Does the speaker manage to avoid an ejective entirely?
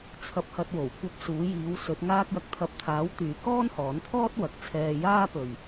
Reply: yes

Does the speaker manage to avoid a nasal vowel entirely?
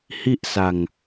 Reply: yes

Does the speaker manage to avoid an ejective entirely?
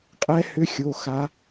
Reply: no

